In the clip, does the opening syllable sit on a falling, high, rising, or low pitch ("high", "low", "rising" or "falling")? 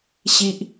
high